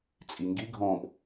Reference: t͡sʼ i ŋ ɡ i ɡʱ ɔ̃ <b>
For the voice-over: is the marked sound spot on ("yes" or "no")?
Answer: yes